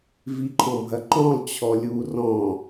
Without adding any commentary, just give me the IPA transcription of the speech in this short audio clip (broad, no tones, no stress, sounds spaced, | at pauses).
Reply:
v i ǃʰ ɔ̃ bʱ ɐ ǃ ɔ̃ lˠ t͡ɕʰ ɔ lʲ u r ɔ̃